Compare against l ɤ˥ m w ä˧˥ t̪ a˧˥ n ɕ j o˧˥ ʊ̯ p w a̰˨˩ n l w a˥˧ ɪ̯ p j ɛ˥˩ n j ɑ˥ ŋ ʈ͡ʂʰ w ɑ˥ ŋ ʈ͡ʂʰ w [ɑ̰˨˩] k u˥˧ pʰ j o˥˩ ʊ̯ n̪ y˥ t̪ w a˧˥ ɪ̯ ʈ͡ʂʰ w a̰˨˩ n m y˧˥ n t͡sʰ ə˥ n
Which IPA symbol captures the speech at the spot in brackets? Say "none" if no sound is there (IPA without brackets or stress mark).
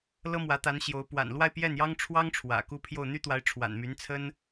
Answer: ä̰˨˩